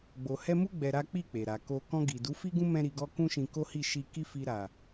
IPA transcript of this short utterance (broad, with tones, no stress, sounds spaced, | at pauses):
ɡ͡b o˨ h ɛ˧ m u˦ ɡ͡b ɛ˧ ɾ a˦ k͡p i˦˨ k͡p e˨ ɾ a˨ k o˧ k ɔ̃˧ ɡ i˨ d u˨˦ f i˦ ɡ ũ˦ m ɛ̃˦ ɾ i˧ ɡ ɔ˦ k ũ˦ ʃ ĩ˧ k o˦ h i˦˨ ʃ i˧ k i˦ f i˧ ɾ a˨